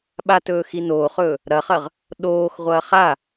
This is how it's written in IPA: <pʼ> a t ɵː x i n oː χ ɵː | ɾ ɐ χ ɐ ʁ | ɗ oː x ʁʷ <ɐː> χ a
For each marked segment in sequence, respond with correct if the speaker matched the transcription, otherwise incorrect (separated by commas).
incorrect, correct